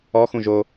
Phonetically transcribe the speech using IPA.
ɔ x ũ ʒ o

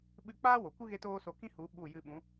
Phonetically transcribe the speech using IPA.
ɓ ɨ˦˨ k͡p aː˦ w o˨ kʷ ɨ˦ ɣ e˦ t oː˦ s o˧ k ĩ˦ h u˨˦ ɓ u˦˨ j ɨ˧ ɓ ũ˨˦

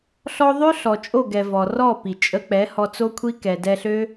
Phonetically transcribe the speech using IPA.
ɬ ɔ˧ ðˤ ø˦ ɬ ɔ˨ t͡ʃʼ o˦˨ ɡ ɛ˨ v ɔ˨ r ɔ˦˨ p i˨ t͡ʃʼ ə˦ k͡p ɛ˨˦ h ɔ˧ t͡s o˦ kʷʰ i˦ k ɛ˨ d ɛ˧ ɬ ø˦

